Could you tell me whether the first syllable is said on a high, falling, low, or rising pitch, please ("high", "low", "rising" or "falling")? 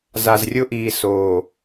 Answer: low